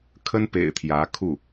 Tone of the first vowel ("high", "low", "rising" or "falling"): high